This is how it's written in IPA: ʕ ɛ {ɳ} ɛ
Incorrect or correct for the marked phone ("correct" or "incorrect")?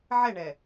correct